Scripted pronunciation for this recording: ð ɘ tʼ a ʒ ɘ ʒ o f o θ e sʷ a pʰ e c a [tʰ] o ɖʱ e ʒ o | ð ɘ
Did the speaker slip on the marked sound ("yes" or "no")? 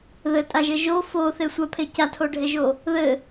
no